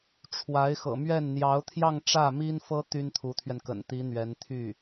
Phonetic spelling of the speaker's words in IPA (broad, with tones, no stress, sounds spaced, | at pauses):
ʈ͡ʂʰ w a˧˥ ɪ̯ x ɤ̰˨˩ m ɥ ɛ˥˩ n n̪ j ɑ˧˥ ʊ̯ t̪ʰ j ɑ˥˧ ŋ ʈ͡ʂ ä˥˩ m i˥ n f ɤ˥ t̪ y˥ n t̪ʰ u˧˥ t̪ʰ ɥ ɛ˧ n k ə̰˨˩ n t̪ i˧˥ n̪ ɥ ɛ˧˥ n t̪ʰ y˥˩